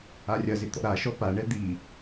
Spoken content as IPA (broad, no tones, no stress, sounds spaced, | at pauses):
a rʲ ɐ z ɪ t̪ ɔ̰ ɾ a ʃ ɔ p a ɳ ɛ d̪ i